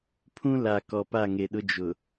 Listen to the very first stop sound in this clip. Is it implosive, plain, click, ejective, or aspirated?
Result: aspirated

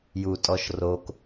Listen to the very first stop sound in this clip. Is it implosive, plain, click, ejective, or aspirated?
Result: ejective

